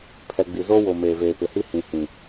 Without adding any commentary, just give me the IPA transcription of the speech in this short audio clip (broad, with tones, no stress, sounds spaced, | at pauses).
pʰ ɛ˨ ɡ͡b i˨ z o˦ w o˨ m eː˨ v eː˨ p ɪ˨ h i˦ h ĩ˨ h ĩ˨